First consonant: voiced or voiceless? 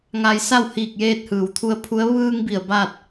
voiced